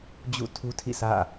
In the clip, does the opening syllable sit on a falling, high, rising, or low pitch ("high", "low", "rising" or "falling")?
falling